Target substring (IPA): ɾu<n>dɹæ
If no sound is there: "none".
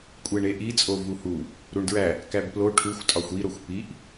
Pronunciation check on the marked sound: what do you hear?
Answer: ɳ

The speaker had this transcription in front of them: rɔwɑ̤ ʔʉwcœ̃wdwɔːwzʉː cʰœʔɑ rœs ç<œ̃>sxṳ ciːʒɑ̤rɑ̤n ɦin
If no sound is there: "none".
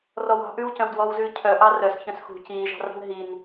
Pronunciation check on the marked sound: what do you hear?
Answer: œ̃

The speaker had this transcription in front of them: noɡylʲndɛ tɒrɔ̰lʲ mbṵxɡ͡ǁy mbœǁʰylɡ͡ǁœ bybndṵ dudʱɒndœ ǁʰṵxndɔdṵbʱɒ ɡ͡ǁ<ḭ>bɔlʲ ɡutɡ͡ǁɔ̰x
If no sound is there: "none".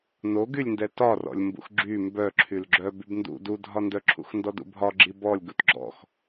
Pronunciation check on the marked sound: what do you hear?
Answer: i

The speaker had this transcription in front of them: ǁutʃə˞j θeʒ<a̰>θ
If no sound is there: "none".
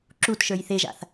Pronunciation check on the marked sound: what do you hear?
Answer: a̰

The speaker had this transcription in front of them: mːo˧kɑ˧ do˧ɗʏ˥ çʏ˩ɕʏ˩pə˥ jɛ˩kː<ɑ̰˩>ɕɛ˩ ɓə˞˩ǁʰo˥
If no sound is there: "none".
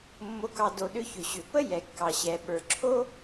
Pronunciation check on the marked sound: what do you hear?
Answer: ɑ˩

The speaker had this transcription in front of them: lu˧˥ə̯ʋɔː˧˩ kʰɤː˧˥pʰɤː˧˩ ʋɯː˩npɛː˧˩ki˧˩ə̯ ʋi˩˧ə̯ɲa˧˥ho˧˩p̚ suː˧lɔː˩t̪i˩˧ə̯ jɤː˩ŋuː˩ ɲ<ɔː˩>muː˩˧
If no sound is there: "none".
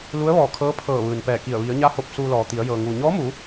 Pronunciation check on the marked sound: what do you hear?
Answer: ɔː˧˥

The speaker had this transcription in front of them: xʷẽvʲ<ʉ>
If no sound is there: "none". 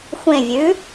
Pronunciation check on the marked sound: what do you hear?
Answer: ʉ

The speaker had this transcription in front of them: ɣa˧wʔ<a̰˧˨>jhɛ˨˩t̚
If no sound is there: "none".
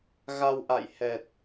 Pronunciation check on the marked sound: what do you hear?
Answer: a̰˧˨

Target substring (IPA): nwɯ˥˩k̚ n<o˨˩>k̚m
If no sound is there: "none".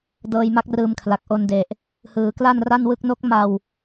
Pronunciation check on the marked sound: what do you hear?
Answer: o˦˥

